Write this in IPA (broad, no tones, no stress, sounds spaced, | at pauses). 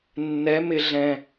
nː ɛ m ɪ ɮ ɛ̃